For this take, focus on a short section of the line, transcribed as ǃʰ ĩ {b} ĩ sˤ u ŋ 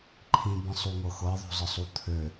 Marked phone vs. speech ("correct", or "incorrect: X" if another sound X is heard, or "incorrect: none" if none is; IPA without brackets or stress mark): correct